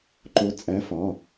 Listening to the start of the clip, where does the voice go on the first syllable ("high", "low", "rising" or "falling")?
rising